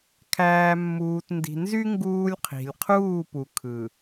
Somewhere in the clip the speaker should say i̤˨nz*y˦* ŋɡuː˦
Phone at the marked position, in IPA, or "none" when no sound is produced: y˦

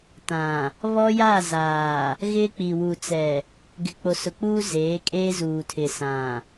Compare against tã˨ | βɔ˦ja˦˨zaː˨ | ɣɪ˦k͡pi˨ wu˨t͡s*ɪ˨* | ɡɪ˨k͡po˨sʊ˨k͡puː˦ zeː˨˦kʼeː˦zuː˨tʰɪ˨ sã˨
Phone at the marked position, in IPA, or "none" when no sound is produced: ɛ˨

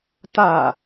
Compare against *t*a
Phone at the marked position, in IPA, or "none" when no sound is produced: t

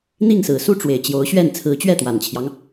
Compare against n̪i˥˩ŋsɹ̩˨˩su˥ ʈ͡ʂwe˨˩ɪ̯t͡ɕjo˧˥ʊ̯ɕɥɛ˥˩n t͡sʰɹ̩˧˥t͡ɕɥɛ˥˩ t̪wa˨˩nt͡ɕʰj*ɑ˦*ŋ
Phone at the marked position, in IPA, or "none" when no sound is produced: ɑ˦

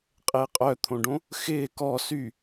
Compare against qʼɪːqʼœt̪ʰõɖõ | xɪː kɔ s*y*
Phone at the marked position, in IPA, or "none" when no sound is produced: y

